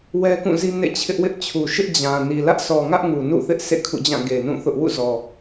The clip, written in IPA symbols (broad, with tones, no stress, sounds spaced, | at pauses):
w ɛ˦ k ũ˦˨ z i˦ n ḛ˦˨ t͡ɕʰ ɪ˦ ʔ w ɪ˦ ʔ t͡ɕʰ u˨ ʃ ɪ˦ ʔ d͡ʑ ã˨ n i˨ l ä˦ ʔ s ɔ˨ ŋ ä˦ ʔ ŋ u˨ n ṵ˦˨ θ ɪ˦ ʔ s ḛ˦˨ kʰ ṵ˦˨ d͡ʑ ã˦˨ ɡ e˨ n ũ˦˨ θ ʊ˦ ʔ w ṵ˦˨ z ɔ˨